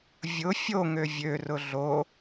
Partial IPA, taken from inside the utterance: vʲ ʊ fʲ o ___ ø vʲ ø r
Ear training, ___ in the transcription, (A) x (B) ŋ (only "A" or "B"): B